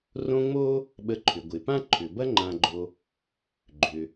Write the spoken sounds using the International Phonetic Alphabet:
r õ˦ ŋ͡m o˥ | ɓ ə˨ ǃʰ ʏ˩ ɡʷ ɪ˩ p ã˥ ǃʰ ʏ˩ b ɐ˦ ŋ͡ǃ ã˨ ɡ͡ǃ o˨ | ɡ͡ǃ ʏ˩

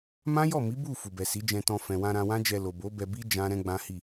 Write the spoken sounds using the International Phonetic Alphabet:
m ã˦ j ɔ˦˨ m i˨˦ b u˦˨ f u˨ b ɛ˨ s i˨˦ d͡ʒ ɛ̃˧ t ɔ̃˧ f ɛ̃˨ w ã˧ ɾ ã˧ w ã˦ d͡ʒ ɛ˧ l o˨ b o˨˦ b ɛ˧ b i˦ d͡ʒ ã˦ ɾ ɛ̃˦ ɡ͡b ã˦ h i˦˨

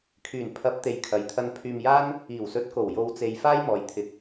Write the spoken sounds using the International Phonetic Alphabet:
kʰ yː˨˩ n pʰ ɐ˨˥ p̚ t̪ e˨ j kʰ ɐ˨ j t̪ʰ ɐ˧ n pʰ yː˧ m j aː˥ n | iː˨˩ w s ɵ˨˥ t̚ k o˨˩ w j o˨˧ w t͡s e˨ j f aː˥ j m ɔː˨ j t̪ʰ ɪ˨˥ k̚

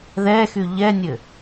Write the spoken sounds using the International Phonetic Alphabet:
ð ɛ x y ʎ ɛ nʲ ɘ

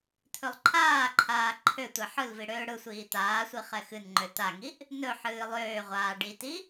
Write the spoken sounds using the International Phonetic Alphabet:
t̪ʰ ɵ lˠ ǃʰ aː ǃʰ aː ǃʰ ø tʷ ɛ ħ ɯ l v i ɽ øː ɽ ɯ sʷ iː t̪ aː sʷ i χ ɛ x ɨ n ŋ͡ǃ ø t̪ a ŋ i ʔ | n ɵ ħ ɨː lˠ øː ʁʷ aː ɖ i t i

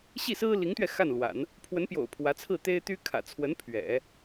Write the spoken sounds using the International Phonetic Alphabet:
ɕ i˥˩ s ɹ̩˥ l i˧˥ ŋ t̪ ɥ ɛ˧ x a˥˩ n l w a̰˨˩˦ n | pʰ w ə˧˥ n p j o̰˨˩ ʊ̯ pʰ w ä˧˥ t͡sʰ ɹ̩˥˩ t̪ e˥ ɪ̯ t̪ y˥ kʰ ä̰˨˩ t͡sʰ w ə˧˥ n pʰ ɥ ɛ̰˨˩˦

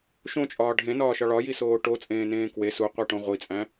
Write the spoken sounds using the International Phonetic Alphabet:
ʃ õ t͡ʃʼ ɒː ɖʱ ẽ n ɒː ʃ ɒ ɭ ɒ j i s oː ʈ o t͡sʼ ẽː n ẽː k w e s u qʷ æ ʈ õ ʁʷ i t͡sʼ æ̃

